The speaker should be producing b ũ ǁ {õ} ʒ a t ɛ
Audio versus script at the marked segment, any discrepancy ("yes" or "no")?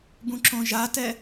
no